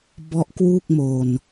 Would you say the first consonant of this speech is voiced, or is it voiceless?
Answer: voiced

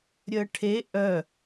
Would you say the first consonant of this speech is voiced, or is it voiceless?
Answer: voiced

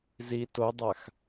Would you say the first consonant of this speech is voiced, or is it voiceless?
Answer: voiced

